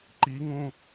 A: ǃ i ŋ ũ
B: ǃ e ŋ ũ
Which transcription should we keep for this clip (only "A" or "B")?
A